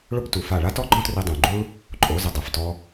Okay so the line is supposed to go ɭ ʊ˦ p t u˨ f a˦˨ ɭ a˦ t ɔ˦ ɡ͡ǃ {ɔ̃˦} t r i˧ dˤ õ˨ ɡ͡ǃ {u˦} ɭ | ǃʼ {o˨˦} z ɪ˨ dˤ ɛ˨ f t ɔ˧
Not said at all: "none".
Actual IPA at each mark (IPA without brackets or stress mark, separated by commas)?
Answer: ɔ̃˦, u˦, o˨˦